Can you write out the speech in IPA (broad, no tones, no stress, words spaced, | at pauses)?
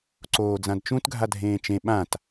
ǀoːd͡zãdt͡ʃũt ɡʱadʱẽːt͡ʃẽ ɓãt